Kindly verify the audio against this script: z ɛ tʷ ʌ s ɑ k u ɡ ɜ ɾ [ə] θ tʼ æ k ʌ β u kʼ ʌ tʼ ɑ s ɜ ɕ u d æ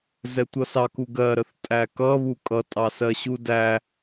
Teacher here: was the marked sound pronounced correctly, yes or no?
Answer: yes